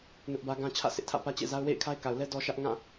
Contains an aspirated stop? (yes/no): yes